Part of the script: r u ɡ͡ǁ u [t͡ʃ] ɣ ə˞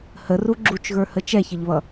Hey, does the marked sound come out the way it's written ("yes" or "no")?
yes